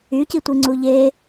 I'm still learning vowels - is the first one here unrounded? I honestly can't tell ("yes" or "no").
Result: no